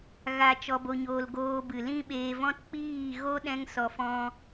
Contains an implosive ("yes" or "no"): yes